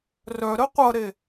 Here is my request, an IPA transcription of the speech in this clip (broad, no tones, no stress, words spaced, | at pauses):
rœɾə qʷʌɾe